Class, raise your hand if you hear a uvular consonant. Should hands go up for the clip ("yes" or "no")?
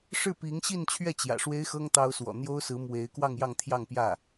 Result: no